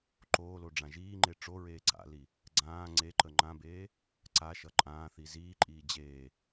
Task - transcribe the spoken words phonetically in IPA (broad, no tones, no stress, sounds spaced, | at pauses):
ǃ oː l o ɖ͡ʐ ã ʒ iː ŋ͡ǃ e ʈ͡ʂ o ɹ eː ǀ a̰ l i | ɡ͡ǀ ãː ŋ͡ǀ e ǃ ə ŋ͡ǃ ã b eː | ǀ a ʃ ʌ ǃʼ ãː θ i z iː ǃʼ iː d͡ʑ eː